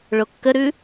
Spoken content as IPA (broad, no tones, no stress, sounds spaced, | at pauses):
ɭ o kː ə ɾ ʉ